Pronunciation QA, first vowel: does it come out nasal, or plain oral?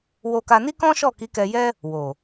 oral